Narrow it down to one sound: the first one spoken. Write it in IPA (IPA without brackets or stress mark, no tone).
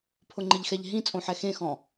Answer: pʰ